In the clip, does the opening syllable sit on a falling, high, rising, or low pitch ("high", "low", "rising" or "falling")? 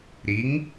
rising